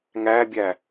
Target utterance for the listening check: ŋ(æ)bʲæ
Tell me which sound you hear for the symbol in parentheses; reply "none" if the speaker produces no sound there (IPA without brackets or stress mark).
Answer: æ